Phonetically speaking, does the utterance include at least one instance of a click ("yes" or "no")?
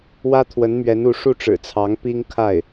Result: no